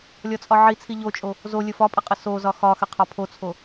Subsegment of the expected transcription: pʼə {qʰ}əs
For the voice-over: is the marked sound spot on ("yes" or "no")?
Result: no